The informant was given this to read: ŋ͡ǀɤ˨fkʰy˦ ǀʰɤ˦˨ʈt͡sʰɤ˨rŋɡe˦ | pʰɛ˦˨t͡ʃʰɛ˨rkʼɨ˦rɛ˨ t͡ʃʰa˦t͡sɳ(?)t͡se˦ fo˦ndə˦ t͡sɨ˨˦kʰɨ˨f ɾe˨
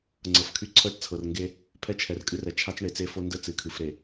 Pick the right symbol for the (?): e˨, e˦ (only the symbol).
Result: e˨